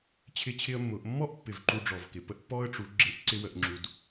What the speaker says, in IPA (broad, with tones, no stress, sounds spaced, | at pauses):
t͡ɕʰ ɪ˦ t͡ɕʰ ɪ˦ ə̯ mː ʊ˨˦ ʔ mː ɔ˦ ʔ pː ɪ˨ v ǃ u˧ ɖ͡ʐ ɔ˨ v k ɪ˨ p ə˦ ʔ pː ɔ˦ ə̯ ʈ͡ʂ u˨˦ ɡ͡ǁ ɪ˧ ʔ ǀ ɪ˦ w ə˧ ʔ ŋ͡ǁ u˧ d